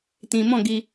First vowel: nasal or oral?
nasal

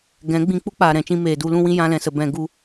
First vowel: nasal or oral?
nasal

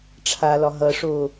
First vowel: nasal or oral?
oral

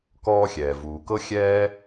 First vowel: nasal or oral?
oral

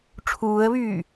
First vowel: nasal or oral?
oral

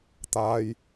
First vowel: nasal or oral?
oral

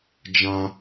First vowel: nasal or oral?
nasal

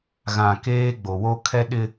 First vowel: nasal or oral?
nasal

